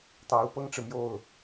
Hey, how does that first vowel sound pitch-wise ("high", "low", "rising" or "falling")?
rising